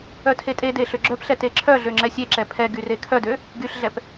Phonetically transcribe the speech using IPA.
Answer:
œ tʰ e tʼ e d e ɬ ø ɡ͡ǁ œ p ɬ ɛ t e ǁʰ œ ɮ ø ŋ͡ǁ ɛ sʲ e ǁ ɛ pʰ ɛ ɡ y r e kʰ œ d ø | ɡ y ɬ ɮ ɛ p

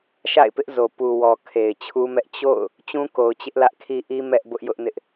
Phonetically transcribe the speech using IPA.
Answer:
ʃ a̰˦˨ ɪ̯ p ɪ˦ ʔ z o˨ p u˨ w ɔ˨ kʰ e˨ ɪ̯ t͡ɕʰ u˦ m ɛ˦ ʔ t͡ɕ o̰˦˨ ʊ̯ | t͡ɕ ũ˦ k o˨ ʊ̯ t͡ɕ ɪ˦ ʔ l ä˦ ʔ kʰ i˦ ʔ i˦ m ɛ˦ ʔ b ʊ˦ ʔ j ʊ˦ ʔ n ɪ˦ ʔ

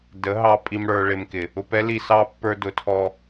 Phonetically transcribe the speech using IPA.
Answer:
d ə˨˦ ɦ ɑ˧ pʼ i˧ m ɽ ə˞˧ ɭ ɪ˧ m k ɪ˨ | ʊ˧ p ɛ˦ l i˦˨ s ɑ˦ pː ə˞˧ d ʊ˨˦ tʰ ɔ˧

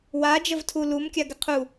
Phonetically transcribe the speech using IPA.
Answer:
w a d͡ʒ ə v tʰ u l u m kʲ a ɡ ɪ qʰ u

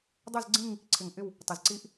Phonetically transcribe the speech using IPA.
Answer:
dˤ ɵ˦˨ z ɡ͡ǀ ĩ˦˨ ŋ | ǀʰ ɪ˨˩ ŋ ʔ ɪ˦˨ w | tˤ ɪ˨˩ z ǀ i˦˥ ʔ

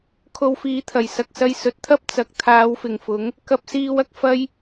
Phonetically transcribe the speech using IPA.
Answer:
kʰ o˧ w f iː˨˥ t̪ʰ ɐ˨˩ j s ɐ˧ k̚ s ɐ˧ j s ɵ˨˥ t̚ t̪ʰ ɐ˥ p̚ t͡s ɐ˨ k̚ t̪ʰ aː˨˧ w f ɪ˨˩ ŋ f ʊ˨˥ ŋ | k ɐ˧ p̚ s iː˧ w ɐ˧ k̚ f ɐ˥ j

